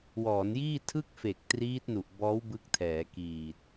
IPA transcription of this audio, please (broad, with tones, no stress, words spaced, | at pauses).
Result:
wɔː˩˦njiː˥˩ tʰɯ˥˩k̚fe˨˩k̚ triː˦˥t̚nu˨˩ʔbɔː˦˥w bɯ˦˥k̚tʰɛː˩˦kiː˨˩t̚